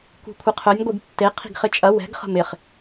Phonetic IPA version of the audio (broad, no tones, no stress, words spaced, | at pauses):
kʷi̤kʷʰɪqʰœnʲ ɡʷiɡtːe qʰi̤ɡχɪt͡ʃʼɐ wɛ̤ɡ χə̤mɪχ